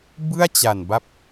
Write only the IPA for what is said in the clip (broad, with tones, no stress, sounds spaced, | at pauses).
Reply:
b ɯ˥˩ a̯ t͡ɕ a˨˩ n b a˦˥ p̚